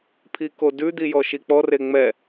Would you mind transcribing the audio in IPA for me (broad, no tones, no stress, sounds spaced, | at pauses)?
pʰ i k o d ʉ d̪ i j ɔ ʃ i k͡p ɔ r e ŋ͡m ɛ